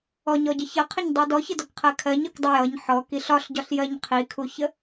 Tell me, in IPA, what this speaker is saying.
ɔ ɲ ɔ ɟ ə ç ʌ qʰ ə ɲ dˤ i d ɔ ç ə d ɔ k qʰ ɜ kʰ ɜ ɲ ɒ k dˤ ə j ʌ ɲ ħ ɔ k i ɬ ɒ ɬ ɟ ɒ ɬ j ɜ ɲ qʰ i kʰ u ç ə

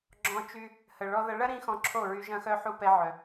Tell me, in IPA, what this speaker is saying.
ɡ͡ǁ ɔ̃˧ t͡ʃ y˧ | h ə˨ ɭ ɔ˧ ð ɐ˧ ɭ ɐ˦ ɾ ĩ˦ x ɔ̃˧ ǁʰ o˦˨ ɹ y˧ ʒ ɐ̃˧ x œ˧ ħ u˦ p ɛ˦ ʕ œ˧

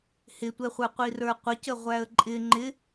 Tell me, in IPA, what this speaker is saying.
h ɪ tʷ ɛ χʷ ə˞ qʷ i r ə˞ qʷ ə c ə ʁʷ æ ə̯ ǃʼ ɪ ŋ͡ǃ ɪ

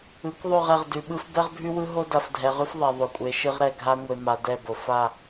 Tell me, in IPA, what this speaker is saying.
ɯ˨˦ k ðˤ ʉ˦˨ ʁ ɛ˨ ʁ d ʉ˨ ɓ ɯ˦ f b ɛ˦ ʁ bʱ ʉ˦ w ɯ˦ ɦ o˦ d a˨ f dʱ ɛ˨ ʁ ʉ˦ f ðˤ ɛ˨ ðˤ o˨ kʷʼ e˨˦ ʃ ɯ˦ ʁ ɾ ɛ˨ ɡʱ a˦ ŋʷ e˨ m a˨ d ɛ˦˨ b o˨ f a˦˨

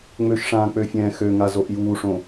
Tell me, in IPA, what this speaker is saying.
ŋ͡m ø ʃ ʂ ãː k͡p ø fʲ ɛ̃ː x ø ŋ a z o ʔ j uː ʂ õ

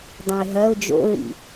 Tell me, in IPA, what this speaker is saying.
dˤ ɛ̃ ɪ̯ ɦ ɐ ʊ̯ d͡ʒ o̰ ɹ ḭ

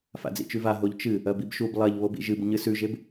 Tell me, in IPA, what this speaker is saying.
f a̰ d͡z ḭ t͡ʃ ʉ v a ɦ o ʎ t͡ʃ ɨ | ɐ b i b ʃ u b lˠ ɐ ʎ β o b ḭ ʒ ɨ b ɲ ɨ s ʉ ʒ e b

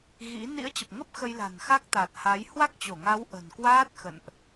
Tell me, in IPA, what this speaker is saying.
ɣ ḭ˧˥ n ḭ˧˥ ə̯ t͡ɕ ə˨˩ p̚ ŋ ə˦˥ p̚ x ə˧ j l a̤˨˩ n x a˦˥ k̚ t̪ a˨˩ t̚ h a˨˦ j h w a˦˥ k̚ t͡ɕ o˧˩ ŋ a˨˦ w ʔ ə̤˨˩ n k w aː˦˥ t̚ x ə̰˧˨ n ʔ

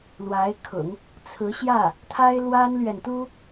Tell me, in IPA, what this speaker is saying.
l w a˧˥ ɪ̯ kʰ ʊ̰˨˩˦ ŋ | t͡sʰ ɹ̩˧˥ ɕ j ä˥˩ | t̪ʰ a˥ ɪ̯ l w a˥ n l ɥ ɛ˨ n t̪ u˥

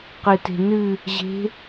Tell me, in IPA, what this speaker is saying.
q ɨ t e̤ n ɨ | ʑ e̤

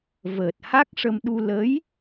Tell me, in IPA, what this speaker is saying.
v əː˨˩ t̚ h a˦˥ k̚ ʂ ə˧ m ɗ u˧ l ə˧˥ j

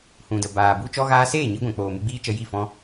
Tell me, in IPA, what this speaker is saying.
h ũ˨ d ə˨ b aː˨ b u˧ t͡ʃ ɔ˦ ɣ aː˦ s eː˦˨ ɲ i˧ ɡʷ ɛ̃˨ k͡p oː˨ m ɨ˧ ɡ͡b iː˦ t͡ʃ ə˧ j i˦˨ f ɔ̃˦

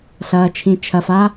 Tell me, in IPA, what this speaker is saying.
ɬ ɐː˧ t͡ʃʰ ĩ˧ t͡ʃʰ ɐ˧ f a˦

